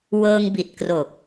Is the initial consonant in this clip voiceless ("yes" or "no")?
no